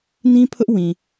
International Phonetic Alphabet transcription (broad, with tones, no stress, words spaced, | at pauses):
nĩ˦pʰʊ˦ʔ wĩ˨